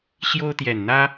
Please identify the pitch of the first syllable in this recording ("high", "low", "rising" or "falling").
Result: high